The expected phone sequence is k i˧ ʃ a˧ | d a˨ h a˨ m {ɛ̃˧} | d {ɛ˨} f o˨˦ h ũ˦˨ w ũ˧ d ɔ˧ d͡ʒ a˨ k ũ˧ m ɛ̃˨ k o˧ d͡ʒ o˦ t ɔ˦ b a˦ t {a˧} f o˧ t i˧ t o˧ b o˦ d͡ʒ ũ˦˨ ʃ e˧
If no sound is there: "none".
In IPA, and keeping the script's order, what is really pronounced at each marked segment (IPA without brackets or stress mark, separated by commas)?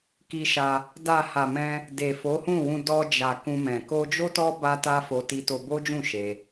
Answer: ɛ̃˧, e˨, a˦